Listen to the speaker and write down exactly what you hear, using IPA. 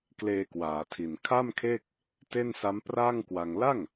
k l eː˧ k w aː˩˦ tʰ i˨˩ n kʰ a˥˩ m kʰ eː˥˩ k̚ | t e˥˩ n s a˦˥ m p r aː˥˩ ŋ k w a˧ ŋ l a˥˩ ŋ

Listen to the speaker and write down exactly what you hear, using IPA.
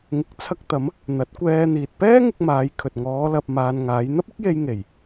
ŋ ɪ˨˥ k̚ t͡sʰ ɐ˧ k̚ t̪ ɐ˨˧ m | n̪ ɐ˨˥ t̚ kʷ ɛː˧ n̪ iː˨ t̚ p ɛː˥ ŋ ɪ˧ k̚ m aː˨˧ j kʰ ɵ˨ t̚ ŋ ɔː˨˧ l ɐ˨ p̚ m aː˨ n ŋ aː˨˧ j n̪ ɐ˥ p̚ ɪ˥ k̚ j e˧ j ŋ e˨˩ j

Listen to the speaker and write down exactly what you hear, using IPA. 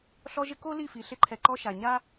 ɬ ɔ˦ ʒ ɪ˦ k o˦ l i˦˨ f i˨ ɬ ɪ˦ ǃʰ ɛ˨ ǃ ɔ˦ ʃ a˨ ɲ a˦

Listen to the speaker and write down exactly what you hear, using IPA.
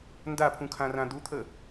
n d a pʰ ũ kʰ ã r ã d̪ u t̪ʰ ə

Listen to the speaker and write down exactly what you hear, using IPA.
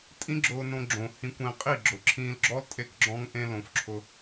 tʼ ĩ˦ ɡ͡ǁ ʊː˧ n õ˧ ɡ͡ǁ õ˨ h ĩ˧ kʷ ẽː˧ qʼ i˦˨ ɡ͡ǁ ʊ˨ ǁʰ ĩː˧ l ɡ͡ǁ ɔ˦ l tʼ e˧ k ɡ͡ǁ ɔ̃˧ ŋ ʔ ẽ˧ l õ˨ f ǁʰ ʊ˧

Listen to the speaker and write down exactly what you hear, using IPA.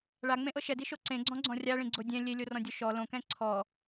ɭ a ŋ͡m ẽ ʔ ɤ ʃ ɛ d i ʃ o ǀ ẽ ɡ͡ǀ ɔ̃ ɡ͡ǀ ɔ̃ rʲ a ɭ ĩ ɡ͡ǀ o dʲ ɛ̃ lʲ e lʲ o r ɔ̃ dʲ o ʃ ɔ l õ k ɛ̃ ǀʰ ɔ

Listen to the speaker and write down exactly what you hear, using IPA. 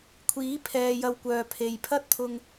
kʷʰ iː˨˥ pʰ ɛː˨ j ɐ˨ w kʷ œː˨ pʰ e˨ j pʰ ɐ˥ t̚ t̪ʰ ʊ˧ ŋ

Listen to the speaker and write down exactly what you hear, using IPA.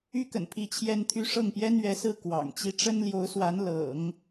y˥ k ə̰˨˩ n pʰ i˥˩ t͡ɕʰ j ɛ˥ n t̪ʰ y˥ ʂ ɤ˥˩ ŋ p j ɛ˥ n ɥ ɛ˧˥ s ɹ̩˥˩ k w ɑ̰˨˩ ŋ t͡ɕ i˥ ʈ͡ʂ ə˥ n l j o˧˥ ʊ̯ s w a˧˥ n l ɤ̰˨˩˦ ŋ

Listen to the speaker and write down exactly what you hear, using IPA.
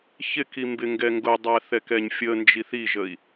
ç ɪ k i m b ɪ ŋ ɡ ɛ ŋ ɡ ʊ dˤ æ θ ɛ k ɛ ɲ fʲ ə n d͡ʒ i θ i ʒ ə i̯

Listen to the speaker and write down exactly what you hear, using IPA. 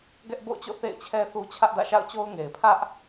ɡ ɛ˦ ʔ b o̰˦˨ ʊ̯ t͡ɕ o̰˦˨ θ ḛ˦˨ ɪ̯ t͡ɕʰ ɛ˦ θ u˦ t͡ɕʰ ä˦ ʔ d ä̰˦˨ ʃ a̰˦˨ ʊ̯ t͡ɕ o˦ ʊ̯ ŋ e˨ ɪ̯ pʰ ä˦ ʔ

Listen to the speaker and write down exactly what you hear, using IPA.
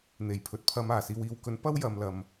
n̪ e˨˩ j pʰ ɵ˨ t̚ pʰ ɐ˨˧ m aː˨˩ s iː˨ w iː˨ w k ɵ˨˥ n p ɐ˧ w j ɐ˨ m l ɐ˨ m

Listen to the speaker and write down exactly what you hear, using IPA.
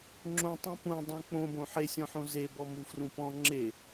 ŋ͡ǁ õ tˤ ũ p ũ dˤ õ k͡p õ b õ ħ e sʲ ɔ̃ ħ õ z e b ɔ m u f r ũ p ɔ̃ ŋ͡ǁ e

